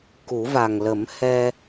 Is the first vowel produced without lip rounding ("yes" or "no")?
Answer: no